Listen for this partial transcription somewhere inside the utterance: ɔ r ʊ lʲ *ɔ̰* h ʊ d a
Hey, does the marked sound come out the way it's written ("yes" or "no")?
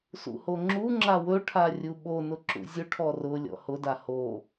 yes